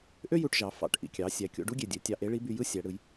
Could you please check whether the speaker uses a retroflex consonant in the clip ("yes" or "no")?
yes